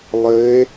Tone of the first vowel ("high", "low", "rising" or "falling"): rising